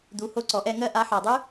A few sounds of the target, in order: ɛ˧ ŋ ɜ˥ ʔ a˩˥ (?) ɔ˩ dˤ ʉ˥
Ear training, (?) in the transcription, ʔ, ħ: ħ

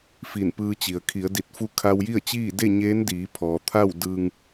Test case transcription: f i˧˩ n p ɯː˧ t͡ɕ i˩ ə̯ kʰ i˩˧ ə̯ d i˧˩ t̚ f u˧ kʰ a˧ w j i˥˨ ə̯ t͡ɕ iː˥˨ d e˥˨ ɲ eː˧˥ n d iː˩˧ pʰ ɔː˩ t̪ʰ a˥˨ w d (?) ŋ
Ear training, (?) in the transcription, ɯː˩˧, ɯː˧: ɯː˧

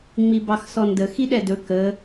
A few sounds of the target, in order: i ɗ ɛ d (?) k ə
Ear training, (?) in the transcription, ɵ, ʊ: ɵ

